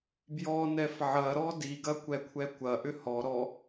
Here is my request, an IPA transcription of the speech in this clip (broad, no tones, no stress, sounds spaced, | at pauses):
b j ɔ n ɛ f ʕ ɐ ɾ ɔ d i ɡ ɐ kʷ ɛ kʷʰ ɛ kʷ ɐ ʔ ʏ h ɔ ɾ ɔ